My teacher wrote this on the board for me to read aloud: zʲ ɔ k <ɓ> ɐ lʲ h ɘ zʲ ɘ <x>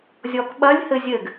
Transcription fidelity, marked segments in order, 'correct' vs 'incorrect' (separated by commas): correct, incorrect